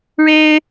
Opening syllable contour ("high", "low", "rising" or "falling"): high